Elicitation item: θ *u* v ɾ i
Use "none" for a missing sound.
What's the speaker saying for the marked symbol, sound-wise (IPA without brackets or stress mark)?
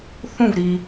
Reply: ũ